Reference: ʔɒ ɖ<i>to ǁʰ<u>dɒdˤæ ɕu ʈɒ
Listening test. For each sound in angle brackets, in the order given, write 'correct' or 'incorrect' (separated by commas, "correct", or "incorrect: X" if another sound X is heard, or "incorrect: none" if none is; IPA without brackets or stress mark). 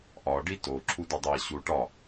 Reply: correct, correct